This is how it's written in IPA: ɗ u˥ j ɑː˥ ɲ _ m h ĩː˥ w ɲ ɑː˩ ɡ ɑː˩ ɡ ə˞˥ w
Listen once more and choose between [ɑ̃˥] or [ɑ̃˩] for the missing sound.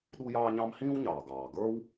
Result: ɑ̃˥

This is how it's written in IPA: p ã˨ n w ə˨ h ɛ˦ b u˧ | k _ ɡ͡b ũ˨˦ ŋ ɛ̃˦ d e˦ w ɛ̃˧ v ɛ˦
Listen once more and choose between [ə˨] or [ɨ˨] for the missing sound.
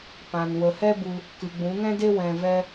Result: ɨ˨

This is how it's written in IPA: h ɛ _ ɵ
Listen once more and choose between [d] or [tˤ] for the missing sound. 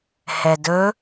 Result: d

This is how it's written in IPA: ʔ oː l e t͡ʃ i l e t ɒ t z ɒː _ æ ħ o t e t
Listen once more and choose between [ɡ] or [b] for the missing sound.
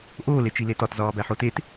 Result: b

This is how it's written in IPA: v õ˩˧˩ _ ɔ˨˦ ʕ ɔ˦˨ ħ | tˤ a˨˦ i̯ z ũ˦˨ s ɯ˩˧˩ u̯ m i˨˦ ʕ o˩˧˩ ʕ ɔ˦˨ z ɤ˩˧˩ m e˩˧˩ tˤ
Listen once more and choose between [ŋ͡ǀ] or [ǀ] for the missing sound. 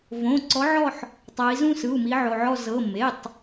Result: ǀ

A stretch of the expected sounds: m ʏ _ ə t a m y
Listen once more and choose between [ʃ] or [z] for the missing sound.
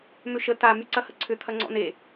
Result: ʃ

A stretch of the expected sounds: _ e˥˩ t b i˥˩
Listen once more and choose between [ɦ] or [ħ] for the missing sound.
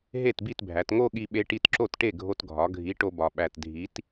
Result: ɦ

